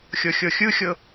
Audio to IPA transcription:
xʲ ɤ xʲ ɤ xʲ ɯ xʲ ɤ

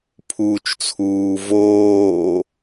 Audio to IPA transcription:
pʰ uː t͡ʃ t͡sʰ uː v oː

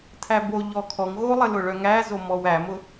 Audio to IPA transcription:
tʰ æ b o ʎ ɔ kʰ ɔ ŋ ɣ o lˠ ə l ʊ ɭ œ ŋ æ z o m ɔ w æ m ʊ

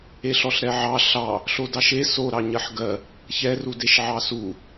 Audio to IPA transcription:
e ɬ ɔ ɬ ɾ ɛ ʕ ɑ ɬ ɑ | ɬ o d ɑ ʃ e s o ɾ ɑ ɲ ɜ ħ ɡ ɜ | ç ɛ r u d e ʃ ʕ ɑ s u

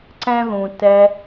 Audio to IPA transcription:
ǀ ɛ̃˦ ð ũ˨ t ɛ˧

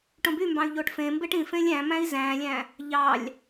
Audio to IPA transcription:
ʈ õ b y m b ɑ̃ y̯ ʎ o ʈ f ẽ m b e ʈ ĩ f ẽ lʲ æ̃ m æ̃ i̯ z æ̃ lʲ æ̃ | ʎ ɑ lʲ

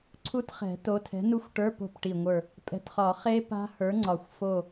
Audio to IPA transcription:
ǀʰ u˦˥ t χ ɛ̤˨˩˦ t o˨˥ tʰ ɛ̤˨˥ n u˦˥ xʷ ʈ ə˞˧˥˧ p o̤˦˨ p ʈ i˨˩ ŋʷ ə˞˦˨ | pʼ ɛ̤˨˩ t χ ɒ˨˩˦ χ e˦˥ p a̤˦˥ h ə˞˨˥ ŋ͡ǀ ɒ˨˩ xʷ f o˦˨

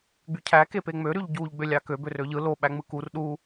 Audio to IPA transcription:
ɡ͡b y cʰ æ k e p e ŋ͡m ø ɾ y ʎ ɟ u ʎ ɡ͡b ø lʲ ɑ k ø b ø r ø ʎ ɯ l o ɓ æ ŋ͡m ɯ k u r ɗ u

